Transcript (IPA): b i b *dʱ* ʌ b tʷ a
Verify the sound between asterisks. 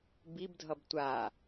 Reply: correct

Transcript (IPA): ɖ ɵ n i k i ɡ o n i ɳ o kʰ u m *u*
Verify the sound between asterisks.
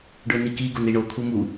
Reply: correct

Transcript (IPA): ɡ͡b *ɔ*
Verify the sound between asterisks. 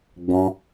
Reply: incorrect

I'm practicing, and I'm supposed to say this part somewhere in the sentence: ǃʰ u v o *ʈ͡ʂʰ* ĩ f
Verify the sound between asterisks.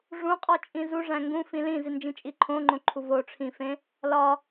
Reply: correct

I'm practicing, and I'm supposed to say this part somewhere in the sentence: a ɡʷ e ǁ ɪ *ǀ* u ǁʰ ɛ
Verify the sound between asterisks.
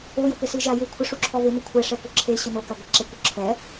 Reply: incorrect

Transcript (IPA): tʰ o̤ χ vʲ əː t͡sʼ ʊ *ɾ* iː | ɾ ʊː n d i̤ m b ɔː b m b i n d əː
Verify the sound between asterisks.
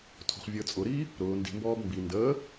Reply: correct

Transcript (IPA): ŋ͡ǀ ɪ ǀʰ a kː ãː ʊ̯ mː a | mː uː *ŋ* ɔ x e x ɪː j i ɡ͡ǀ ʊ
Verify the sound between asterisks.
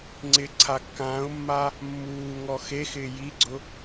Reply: correct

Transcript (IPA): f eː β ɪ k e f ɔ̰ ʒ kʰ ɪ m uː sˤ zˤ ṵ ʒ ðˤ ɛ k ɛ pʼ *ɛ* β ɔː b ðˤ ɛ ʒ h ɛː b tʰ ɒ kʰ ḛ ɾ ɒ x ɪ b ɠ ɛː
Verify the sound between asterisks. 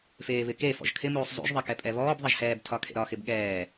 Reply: correct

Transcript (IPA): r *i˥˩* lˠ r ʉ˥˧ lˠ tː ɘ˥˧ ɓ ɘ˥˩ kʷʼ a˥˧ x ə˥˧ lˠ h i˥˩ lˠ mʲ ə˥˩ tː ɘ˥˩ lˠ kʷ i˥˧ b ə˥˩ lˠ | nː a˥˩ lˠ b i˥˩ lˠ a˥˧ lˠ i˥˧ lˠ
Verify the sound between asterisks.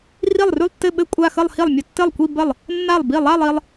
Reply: correct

